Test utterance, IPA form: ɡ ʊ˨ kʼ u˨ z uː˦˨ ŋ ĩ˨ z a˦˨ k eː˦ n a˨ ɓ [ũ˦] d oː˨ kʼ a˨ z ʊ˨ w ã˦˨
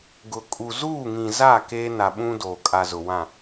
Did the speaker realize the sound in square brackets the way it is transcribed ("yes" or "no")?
yes